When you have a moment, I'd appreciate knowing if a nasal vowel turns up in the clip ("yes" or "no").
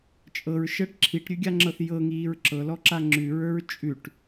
no